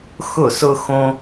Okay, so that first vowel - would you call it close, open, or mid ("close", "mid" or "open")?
close